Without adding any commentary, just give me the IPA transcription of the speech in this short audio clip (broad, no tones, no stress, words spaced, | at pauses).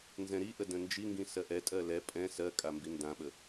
nzɛ̃ɾiʔə də̃nd͡ʒiŋɡĩ sɜʔɛtʼɜ lɛ pʼɛ̃ sɜkʼa mbindãɓə